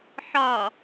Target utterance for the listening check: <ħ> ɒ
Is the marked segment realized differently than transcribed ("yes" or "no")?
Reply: no